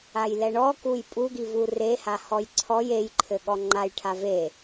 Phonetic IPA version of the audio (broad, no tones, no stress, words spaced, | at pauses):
ajlɛɳɔ kujpʼuɡivu reha hɔjǀʰɔj ejǃʰɘ ɠɔŋ͡ǃaj ʈʰave